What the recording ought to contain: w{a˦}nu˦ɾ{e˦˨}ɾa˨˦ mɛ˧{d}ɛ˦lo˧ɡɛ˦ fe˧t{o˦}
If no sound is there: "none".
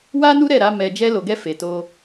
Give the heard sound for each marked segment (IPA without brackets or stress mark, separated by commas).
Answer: a˦, ɛ˦˨, d͡ʒ, o˦